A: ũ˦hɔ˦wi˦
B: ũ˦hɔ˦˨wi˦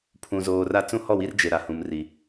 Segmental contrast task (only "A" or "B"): B